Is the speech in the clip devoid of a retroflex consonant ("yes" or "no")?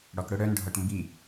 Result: no